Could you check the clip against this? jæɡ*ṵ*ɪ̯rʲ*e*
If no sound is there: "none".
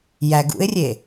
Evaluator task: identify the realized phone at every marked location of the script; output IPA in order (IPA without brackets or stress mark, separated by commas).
ṵ, e